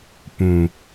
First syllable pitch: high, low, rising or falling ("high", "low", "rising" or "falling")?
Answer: low